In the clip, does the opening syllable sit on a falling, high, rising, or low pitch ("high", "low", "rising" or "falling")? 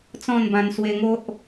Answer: falling